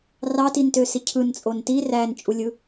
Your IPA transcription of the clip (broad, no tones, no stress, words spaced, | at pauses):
rɑtintøsi cʰɯnt͡sʼon ti rænt͡ʃʼulʲɯ